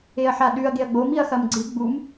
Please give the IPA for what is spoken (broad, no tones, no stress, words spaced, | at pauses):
eɐ̯ħaɗʉɐ̯ ɡeɐ̯ɡ͡bom iɐ̯xɐmɡ͡ǀɨ ɡ͡bum